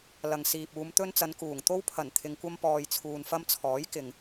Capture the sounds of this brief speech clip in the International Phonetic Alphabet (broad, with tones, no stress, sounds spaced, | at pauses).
l ɐ˨ ŋ s iː˨ p̚ uː˨˧ m t̪ ɵ˧ n t͡s ɐ˨˧ n k uː˨˩ ŋ t̪ o˧ w pʰ ɐ˨˩ n t̪ʰ ɪ˨ ŋ kʷ ɐ˧ m p ɔː˨ j t͡sʰ uː˨ n f ɐ˧ m t͡sʰ ɔː˨˥ j k ɪ˨ ŋ